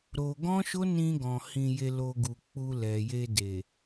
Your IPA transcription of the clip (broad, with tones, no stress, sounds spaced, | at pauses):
ɾ o˧ ɡ ɔ̃˦ ʃ o˦ n ĩ˧ ɡ ɔ̃˨ h ĩ˧ j e˧ l o˧ ɡ u˨ k͡p u˧ l ɛ˨ j e˧ d e˨